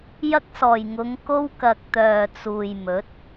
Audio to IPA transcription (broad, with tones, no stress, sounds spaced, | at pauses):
j ɐ˧ k̚ s ɔː˨˩ j ŋ ʊ˨˧ ŋ k o˧ w k ɐ˨ k̚ t̪ œː˨ t͡s uː˨ j m ɵ˨˥ t̚